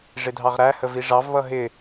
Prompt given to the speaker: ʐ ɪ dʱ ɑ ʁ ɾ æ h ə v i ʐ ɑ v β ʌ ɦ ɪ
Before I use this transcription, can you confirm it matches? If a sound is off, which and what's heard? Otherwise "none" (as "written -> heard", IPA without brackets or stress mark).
none